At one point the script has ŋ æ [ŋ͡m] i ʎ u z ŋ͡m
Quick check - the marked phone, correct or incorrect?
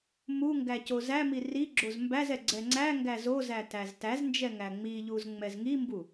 correct